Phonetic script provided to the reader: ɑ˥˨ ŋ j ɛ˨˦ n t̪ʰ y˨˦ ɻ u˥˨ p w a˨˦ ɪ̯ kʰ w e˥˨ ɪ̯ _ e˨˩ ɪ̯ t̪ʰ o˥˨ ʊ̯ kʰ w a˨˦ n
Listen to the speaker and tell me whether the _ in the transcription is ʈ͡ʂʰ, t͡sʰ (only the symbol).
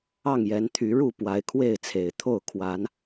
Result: t͡sʰ